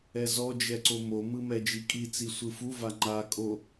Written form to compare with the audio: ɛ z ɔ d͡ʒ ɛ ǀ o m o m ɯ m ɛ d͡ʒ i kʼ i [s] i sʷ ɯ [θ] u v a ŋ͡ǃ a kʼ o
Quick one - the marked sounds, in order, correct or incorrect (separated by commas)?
incorrect, incorrect